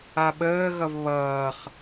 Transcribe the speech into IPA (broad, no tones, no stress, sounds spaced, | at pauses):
a ɓ əː ɣ ʌ v β ʌː χ